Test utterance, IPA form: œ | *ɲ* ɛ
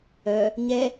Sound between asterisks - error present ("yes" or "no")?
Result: no